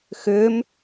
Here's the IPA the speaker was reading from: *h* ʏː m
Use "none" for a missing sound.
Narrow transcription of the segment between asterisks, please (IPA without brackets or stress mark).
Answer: x